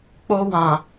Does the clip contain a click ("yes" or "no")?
no